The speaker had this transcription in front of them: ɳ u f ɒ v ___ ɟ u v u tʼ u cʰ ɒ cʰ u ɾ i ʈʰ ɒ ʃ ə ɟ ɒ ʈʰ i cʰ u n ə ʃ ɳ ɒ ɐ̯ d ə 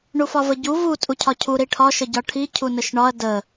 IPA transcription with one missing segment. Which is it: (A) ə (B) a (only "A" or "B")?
A